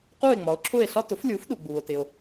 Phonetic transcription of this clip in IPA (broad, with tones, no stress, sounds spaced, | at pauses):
q uː˥˩ e̯ ŋ͡m ɒ˩˥ o̯ ǁʰ ʊː˥˩ e̯ ɬ ɒ˥ t ʊ˩˥ f lʲ uː˩˥ f ɗ u˩ ɡ͡b uː˩ o̯ t ɪ˩ o̯